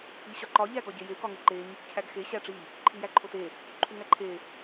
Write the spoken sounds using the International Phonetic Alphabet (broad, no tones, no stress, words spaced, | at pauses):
iɕɒǃɒ ʎæɡɒɟeje kɒŋeǃeɲ | cʰæɡxe ɕæʈ͡ʂi | ǃʰijæǃʰote | ǃʰuŋæǃʰe